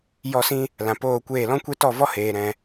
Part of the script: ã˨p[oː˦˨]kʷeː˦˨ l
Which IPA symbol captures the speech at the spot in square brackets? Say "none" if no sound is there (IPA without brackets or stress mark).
oː˦˨